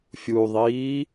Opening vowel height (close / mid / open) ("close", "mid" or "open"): close